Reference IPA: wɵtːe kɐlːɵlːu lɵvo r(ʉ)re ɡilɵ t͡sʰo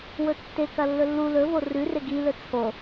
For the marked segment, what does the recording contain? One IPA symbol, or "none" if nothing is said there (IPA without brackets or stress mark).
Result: ʉ